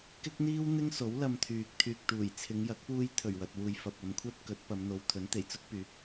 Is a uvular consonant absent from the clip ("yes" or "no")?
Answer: yes